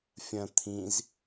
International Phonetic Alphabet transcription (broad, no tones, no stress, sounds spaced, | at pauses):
fʲ ɐ̃ t̪ʰ ĩ z